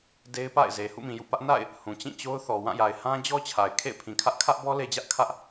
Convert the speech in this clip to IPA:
de˦ɪ̯pa̰˦˨ɪ̯ze˨ hṵ˦˨mĩ˨jṵ˦˨pä˦ʔ na̰˦˨ɪ̯ | hũ˨t͡ɕĩ˦˨t͡ɕo˦ʊ̯θɔ˨ wã˦˨ja˨ɪ̯hã˦ d͡ʑɔ˦t͡ɕʰa˨ɪ̯ kʰḛ˦˨ɪ̯pʰĩ˨kʰä˦ʔ kʰä˦ʔbɔ˦ le˦d͡ʑä˦ʔkʰä˦ʔ

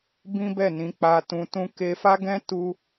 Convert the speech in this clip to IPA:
bĩ˦bɛ˦˨nĩ˨˦ k͡pa˧tũ˧tũ˦ ke˧fa˦ɡɛ̃˦ tu˦

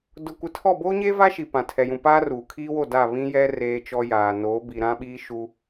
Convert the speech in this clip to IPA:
dʊ˨kʷɪ˨tʰɔ˦˨ boː˦ɲeː˦va˦ ʃi˨pã˨tʰɛ˨jũ˨ paː˦ruː˨kʰiː˦wo˦˨ da˦˨ βĩ˦jɛ˦ reː˦t͡ʃɔ˦jaː˨ noː˨˦bi˨ ɾã˦ɓiː˦ʃu˦

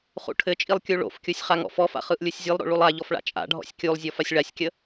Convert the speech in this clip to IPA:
χṵʈʰɘt͡ʃʼilˠ kʲuɭo̰fkʲusʲ χaŋɔ̰fɔfa̰ χɯʔlʲusʲzʲɯlˠɾo̰ ɭulˠaʎɔf ɭa̰t͡ʃʼa̰ɖʱɔ̰sʲ kʲulˠzʲɔ fasʲɭasʲkʲə

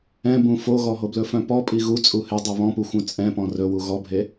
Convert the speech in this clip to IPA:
ɛ̃bũ foɣɔɦo blɵfœ̃pɔ pʼiɣu t͡sʼuhedˤi βɔ̃puxʷœ̃ t͡sʼɛ̃pɔ̃ rɵwu ɣɔbʱe

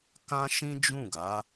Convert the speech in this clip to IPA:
kã˦ʃĩ˦d͡ʒũ˦˨ɡa˨˦

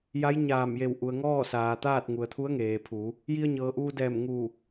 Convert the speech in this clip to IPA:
ja˧˥j ɲaː˧˩mje˧˩w ʔu˩ə̯ŋɔː˥˨ saː˩t̪aː˥˨t̚ ŋu˩ə̯t̪ʰu˧˥ə̯ŋeː˩pʰu˩˧ | ji˧ə̯ɲɤː˩ʔuː˧dɛː˧˩m ŋu˧˩

